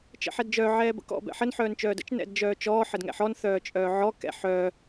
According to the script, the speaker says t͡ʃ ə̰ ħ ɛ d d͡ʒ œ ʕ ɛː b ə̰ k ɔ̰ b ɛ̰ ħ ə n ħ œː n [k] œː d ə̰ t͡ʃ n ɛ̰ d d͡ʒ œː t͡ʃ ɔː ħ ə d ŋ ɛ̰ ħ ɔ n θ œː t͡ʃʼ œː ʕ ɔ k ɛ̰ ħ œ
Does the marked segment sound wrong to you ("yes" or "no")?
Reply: yes